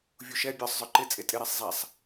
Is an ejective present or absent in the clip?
present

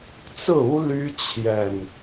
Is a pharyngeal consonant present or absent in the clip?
absent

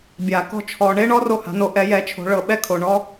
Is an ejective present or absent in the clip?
absent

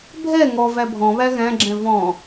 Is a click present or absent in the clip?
present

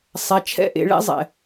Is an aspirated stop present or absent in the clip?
present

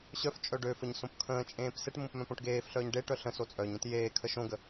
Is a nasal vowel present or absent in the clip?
present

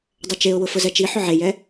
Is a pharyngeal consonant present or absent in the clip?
present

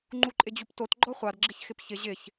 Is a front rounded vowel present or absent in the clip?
absent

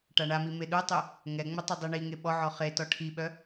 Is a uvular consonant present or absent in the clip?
present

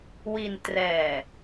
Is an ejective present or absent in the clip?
absent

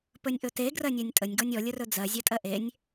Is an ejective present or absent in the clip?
present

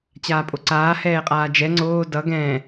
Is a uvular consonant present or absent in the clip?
present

